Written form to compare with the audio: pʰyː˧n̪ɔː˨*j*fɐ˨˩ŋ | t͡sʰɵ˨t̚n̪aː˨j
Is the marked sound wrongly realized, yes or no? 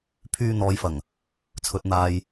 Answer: no